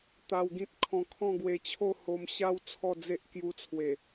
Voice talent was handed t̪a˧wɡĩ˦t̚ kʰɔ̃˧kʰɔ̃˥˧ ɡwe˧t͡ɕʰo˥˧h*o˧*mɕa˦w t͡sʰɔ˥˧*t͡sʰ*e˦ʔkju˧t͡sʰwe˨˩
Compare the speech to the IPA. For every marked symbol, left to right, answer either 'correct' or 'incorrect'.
correct, incorrect: d͡z

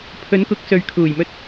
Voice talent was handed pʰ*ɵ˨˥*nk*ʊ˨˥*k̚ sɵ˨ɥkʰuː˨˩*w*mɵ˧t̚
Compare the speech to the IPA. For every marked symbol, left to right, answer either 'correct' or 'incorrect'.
correct, correct, incorrect: j

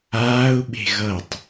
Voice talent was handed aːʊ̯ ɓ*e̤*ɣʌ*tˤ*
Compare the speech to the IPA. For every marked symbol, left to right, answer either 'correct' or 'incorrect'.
correct, correct

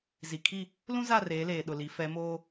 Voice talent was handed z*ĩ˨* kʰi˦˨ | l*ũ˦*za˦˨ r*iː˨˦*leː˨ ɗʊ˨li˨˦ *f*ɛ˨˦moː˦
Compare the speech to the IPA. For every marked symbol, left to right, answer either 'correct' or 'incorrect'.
incorrect: i˨, correct, incorrect: eː˨˦, correct

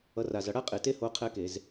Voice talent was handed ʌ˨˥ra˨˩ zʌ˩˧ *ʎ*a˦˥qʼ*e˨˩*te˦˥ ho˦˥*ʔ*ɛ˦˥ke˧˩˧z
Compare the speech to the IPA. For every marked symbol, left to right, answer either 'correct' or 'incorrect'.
incorrect: ɽ, correct, incorrect: qʰ

